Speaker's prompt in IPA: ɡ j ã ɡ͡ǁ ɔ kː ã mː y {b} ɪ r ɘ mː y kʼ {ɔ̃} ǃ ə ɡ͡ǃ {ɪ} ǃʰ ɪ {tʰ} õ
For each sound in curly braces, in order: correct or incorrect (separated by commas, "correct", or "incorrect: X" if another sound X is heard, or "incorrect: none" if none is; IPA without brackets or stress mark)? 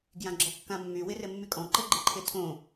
incorrect: w, correct, correct, correct